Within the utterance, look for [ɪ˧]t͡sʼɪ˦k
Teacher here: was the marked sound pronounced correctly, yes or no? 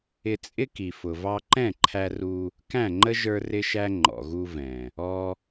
yes